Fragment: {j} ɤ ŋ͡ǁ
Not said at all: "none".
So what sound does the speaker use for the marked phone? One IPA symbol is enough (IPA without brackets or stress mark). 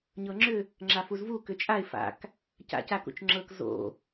ɲ